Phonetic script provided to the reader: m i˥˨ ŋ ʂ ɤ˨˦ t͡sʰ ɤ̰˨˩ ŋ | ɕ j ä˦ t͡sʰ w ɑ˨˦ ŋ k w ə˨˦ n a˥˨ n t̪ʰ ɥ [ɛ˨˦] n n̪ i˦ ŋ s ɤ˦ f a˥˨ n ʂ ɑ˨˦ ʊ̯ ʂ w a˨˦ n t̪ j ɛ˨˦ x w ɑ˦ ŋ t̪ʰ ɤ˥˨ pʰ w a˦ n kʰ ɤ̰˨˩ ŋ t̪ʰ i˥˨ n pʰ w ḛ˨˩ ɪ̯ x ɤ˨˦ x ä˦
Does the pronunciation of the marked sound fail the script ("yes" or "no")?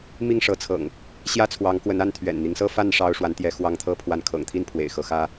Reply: yes